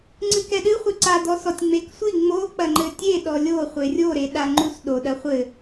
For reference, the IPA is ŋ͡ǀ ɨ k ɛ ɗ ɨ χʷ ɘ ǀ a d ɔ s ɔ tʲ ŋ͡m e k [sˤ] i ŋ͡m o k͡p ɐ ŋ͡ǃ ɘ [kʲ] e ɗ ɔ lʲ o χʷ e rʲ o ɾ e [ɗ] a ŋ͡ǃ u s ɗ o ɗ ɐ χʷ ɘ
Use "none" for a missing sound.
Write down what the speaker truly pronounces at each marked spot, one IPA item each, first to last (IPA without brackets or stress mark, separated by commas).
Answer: sʷ, tʲ, ɗ